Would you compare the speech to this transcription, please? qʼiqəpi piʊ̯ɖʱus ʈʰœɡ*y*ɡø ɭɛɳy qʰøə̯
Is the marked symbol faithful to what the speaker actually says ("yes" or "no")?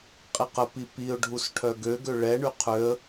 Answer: no